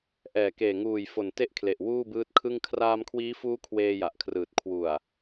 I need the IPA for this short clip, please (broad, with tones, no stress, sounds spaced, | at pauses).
ʔ ɛː˨˩ k eː˨˩ ŋ uː˨˩ j f o˨˩ n t e˥˩ ʔ kʰ l e˨˩ ʔ w uː˥˩ b ɯː˦˥ t̚ kʰ ɯ˥˩ ŋ kʰ r aː˧ m kʰ w iː˦˥ f uː˦˥ kʰ w eː˧ j a˨˩ ʔ kʰ r ɯː˨˩ t̚ kʰ w u˨˩ a̯